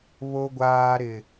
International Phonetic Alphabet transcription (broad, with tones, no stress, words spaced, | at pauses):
βo˦ɡʷaː˦ɾɪ˦